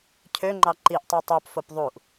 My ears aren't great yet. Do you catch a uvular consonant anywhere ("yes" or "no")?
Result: no